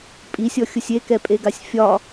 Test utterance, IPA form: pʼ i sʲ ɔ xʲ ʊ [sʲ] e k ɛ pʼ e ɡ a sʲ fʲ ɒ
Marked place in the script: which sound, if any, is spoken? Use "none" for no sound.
sʲ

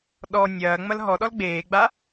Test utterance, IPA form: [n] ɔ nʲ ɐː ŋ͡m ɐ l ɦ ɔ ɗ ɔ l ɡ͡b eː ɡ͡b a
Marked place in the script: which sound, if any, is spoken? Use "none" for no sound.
ɗ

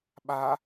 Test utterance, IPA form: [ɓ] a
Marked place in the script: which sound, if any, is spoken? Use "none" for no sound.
ɓ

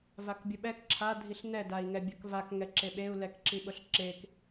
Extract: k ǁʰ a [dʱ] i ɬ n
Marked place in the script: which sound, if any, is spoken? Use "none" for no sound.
dʱ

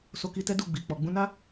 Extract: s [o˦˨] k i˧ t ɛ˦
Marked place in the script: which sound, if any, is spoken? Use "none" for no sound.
o˧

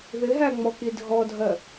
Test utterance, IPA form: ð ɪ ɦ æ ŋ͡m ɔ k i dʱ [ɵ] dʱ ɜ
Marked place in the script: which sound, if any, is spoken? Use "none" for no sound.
ɔ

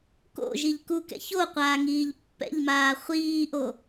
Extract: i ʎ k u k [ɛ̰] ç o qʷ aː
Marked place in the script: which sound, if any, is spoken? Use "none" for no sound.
ɛ̰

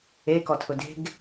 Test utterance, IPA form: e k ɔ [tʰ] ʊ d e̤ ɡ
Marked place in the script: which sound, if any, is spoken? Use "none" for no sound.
tʰ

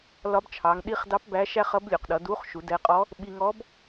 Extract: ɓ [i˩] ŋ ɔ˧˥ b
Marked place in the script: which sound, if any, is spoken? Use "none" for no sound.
i˧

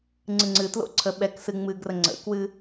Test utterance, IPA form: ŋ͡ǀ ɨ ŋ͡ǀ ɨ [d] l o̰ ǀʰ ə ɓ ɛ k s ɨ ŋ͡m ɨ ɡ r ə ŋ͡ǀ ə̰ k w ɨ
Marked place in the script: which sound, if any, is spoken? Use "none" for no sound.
t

